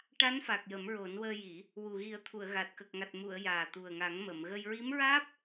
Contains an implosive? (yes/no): no